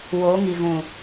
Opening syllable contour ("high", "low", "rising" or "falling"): rising